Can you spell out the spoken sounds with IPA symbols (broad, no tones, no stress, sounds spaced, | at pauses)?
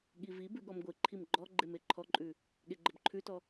ɠ i v i b ʉ ɠ ɔ m ɡʷ e ǃʰ i m ɡ͡ǃ ɔ ɡ͡ǃ e m e ǃʰ ɔ ǃʼ ʉ | ɠ e ɡ͡ǃ ə b ǃʰ ʉ t ɔ